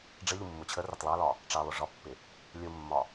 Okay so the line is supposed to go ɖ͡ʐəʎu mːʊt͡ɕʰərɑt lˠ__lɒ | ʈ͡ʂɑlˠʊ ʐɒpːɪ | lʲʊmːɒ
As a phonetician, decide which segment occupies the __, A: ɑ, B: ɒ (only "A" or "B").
A